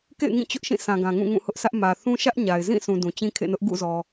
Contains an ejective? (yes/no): no